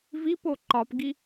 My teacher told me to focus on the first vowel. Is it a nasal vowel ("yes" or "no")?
no